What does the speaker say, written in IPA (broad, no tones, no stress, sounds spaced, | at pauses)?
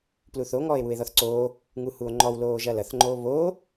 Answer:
p l u θ o ŋ ɔː e̯ w u e̯ ð ɔ θ ǀ oː | ŋ u h u o̯ ŋ͡ǃ ɔ w l oː ʒ ɐ l ɐ θ ŋ͡ǃ oː β oː